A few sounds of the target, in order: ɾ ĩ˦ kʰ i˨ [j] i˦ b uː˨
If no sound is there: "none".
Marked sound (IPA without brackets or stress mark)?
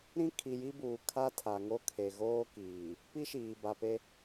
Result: j